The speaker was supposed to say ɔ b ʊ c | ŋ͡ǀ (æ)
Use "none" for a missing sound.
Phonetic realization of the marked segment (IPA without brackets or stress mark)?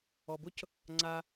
a